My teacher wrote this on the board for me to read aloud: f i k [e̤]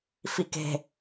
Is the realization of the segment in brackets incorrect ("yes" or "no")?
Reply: no